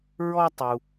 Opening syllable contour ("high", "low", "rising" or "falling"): high